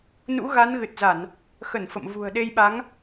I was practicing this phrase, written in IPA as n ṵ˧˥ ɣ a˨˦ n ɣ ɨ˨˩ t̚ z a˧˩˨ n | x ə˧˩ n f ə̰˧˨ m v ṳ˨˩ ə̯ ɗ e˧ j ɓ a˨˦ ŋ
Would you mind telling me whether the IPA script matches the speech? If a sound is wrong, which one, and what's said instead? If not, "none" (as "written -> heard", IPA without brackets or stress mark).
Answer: none